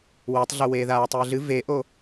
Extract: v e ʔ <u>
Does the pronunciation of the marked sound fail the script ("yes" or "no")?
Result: yes